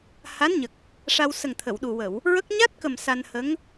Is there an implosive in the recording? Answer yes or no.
yes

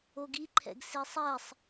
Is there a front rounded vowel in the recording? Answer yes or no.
no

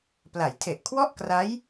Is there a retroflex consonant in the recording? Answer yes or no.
no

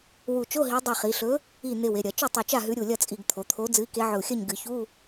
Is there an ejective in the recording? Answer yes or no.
yes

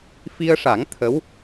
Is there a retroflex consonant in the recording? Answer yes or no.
yes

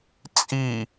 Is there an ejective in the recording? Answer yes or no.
yes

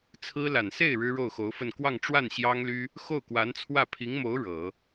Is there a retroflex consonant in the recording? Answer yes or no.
yes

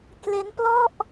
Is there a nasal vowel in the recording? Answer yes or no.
no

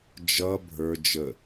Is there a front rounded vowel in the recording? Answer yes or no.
no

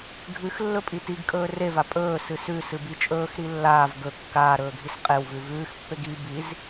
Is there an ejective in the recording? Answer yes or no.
yes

